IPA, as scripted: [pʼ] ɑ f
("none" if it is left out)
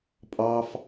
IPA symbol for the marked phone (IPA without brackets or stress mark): pʼ